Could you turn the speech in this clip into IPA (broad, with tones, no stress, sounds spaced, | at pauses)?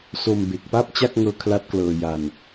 s o˧ m b e˨˩ k̚ p a˥˩ p̚ t͡ɕ a˥˩ k̚ ŋ ɤː˧ kʰ l a˦˥ t̚ k l ɤː˧ j a˧ n